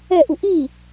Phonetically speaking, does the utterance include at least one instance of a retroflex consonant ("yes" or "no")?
no